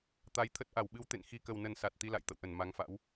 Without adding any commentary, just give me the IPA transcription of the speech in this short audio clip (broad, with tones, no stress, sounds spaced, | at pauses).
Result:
t̪ a˨˦ j t̪ʰ ə˦˥ t̚ ʔ a˧˩ w ɓ ɨ˨˦ w t̪ ḛ˧˨ n x i˨˩ k ə˨˩ w n ə˨˩ n s a˨˩ t̚ t̪ i˧ l a̰˧˨ j t̪ ə̰˧˨ w ʔ ə˧˩ n m a˨˦ ŋ f a̰˧˥ w